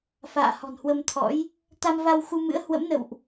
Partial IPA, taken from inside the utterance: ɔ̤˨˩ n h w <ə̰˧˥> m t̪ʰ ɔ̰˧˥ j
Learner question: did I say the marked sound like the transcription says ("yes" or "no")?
no